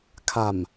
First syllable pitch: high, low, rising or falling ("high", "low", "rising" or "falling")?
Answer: low